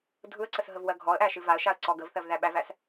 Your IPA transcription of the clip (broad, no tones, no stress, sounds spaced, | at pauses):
dʱ ɯ ə̯ ǀ ə s ɦ ə v w ɜ ɡʱ ɔ ə̯ ʔ æ ʃ ɨ v a ə̯ ʃ a ə̯ ǀ ɔ ɡ ə v θ ɜ v ð æ ɓ æ v æ s